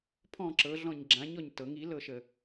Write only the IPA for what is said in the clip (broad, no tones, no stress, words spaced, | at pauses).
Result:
pʰɔ̃ ǁɤɮɔ̃ɲ ɡ͡ǁãɲɔɲ tɤŋ ilɤʃə